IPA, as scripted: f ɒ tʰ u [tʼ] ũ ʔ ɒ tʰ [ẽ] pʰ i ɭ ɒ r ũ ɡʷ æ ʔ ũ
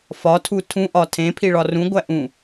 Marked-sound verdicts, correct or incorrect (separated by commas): incorrect, correct